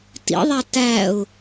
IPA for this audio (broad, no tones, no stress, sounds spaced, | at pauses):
t ḭ ðˤ a t æ ʊ̯